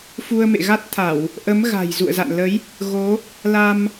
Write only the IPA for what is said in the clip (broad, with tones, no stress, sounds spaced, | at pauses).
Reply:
f u˧ ə̯ m ḛ˧˨ ɣ a˦˥ t̚ t̪ʰ a˧˩˨ w | ʔ ə˨˦ m ɣ a̤˨˩ j z ṵ˧˨ ə̯ z a̰˧˨ n l ə˨˦ j | ɣ o˨˦ | l a˧ m